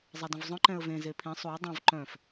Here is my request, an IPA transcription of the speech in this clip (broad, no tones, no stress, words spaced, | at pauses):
zˤædə̃vzˤœ̃ ǃɛ̃ə̯vẽ zepʰĩ sˤuɪ̯ dˤœ̃v ǃœ̃f